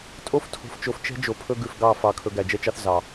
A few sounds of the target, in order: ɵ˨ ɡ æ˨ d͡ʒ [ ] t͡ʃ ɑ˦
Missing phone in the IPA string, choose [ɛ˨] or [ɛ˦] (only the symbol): ɛ˦